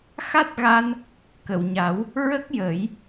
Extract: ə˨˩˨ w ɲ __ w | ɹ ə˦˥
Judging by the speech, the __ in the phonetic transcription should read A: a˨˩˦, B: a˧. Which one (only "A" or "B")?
A